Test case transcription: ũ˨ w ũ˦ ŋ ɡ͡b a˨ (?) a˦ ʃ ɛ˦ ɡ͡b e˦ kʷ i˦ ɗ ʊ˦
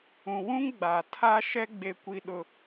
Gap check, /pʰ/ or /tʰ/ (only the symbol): tʰ